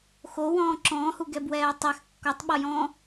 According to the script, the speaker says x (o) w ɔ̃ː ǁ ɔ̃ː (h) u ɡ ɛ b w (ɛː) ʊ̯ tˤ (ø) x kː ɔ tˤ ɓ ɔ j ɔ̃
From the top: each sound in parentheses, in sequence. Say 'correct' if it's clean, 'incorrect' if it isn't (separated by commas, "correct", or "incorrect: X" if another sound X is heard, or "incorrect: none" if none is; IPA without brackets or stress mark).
correct, correct, correct, incorrect: ɛ